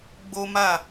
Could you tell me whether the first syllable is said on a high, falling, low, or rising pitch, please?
high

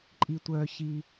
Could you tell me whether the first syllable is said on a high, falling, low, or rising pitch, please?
low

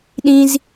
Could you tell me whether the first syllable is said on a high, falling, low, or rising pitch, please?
high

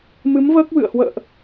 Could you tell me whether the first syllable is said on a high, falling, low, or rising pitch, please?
rising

